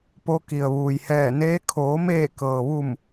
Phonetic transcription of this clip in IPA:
po˧ ki˩ə̯ʋuː˩jhɛː˧˩neː˧˥ kʰoː˩˧meː˧˩kɤː˩ʋu˧˩m

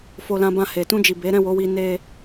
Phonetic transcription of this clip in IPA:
fo˧lã˧bã˧ he˨tũ˧d͡ʒi˨be˨˦ ɾɛ̃˦˨wo˨˦wi˧ ne˦

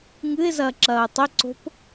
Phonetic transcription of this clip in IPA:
ŋɨɪ̯zɐːǁɐːʊ̯ tˤeǀo̤p

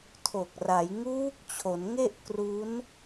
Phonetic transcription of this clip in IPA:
tʰo˨˩k̚ra˩˦j ŋuː˦˥k̚ t͡ɕʰo˩˦nŋe˥˩ʔ kru˦˥n

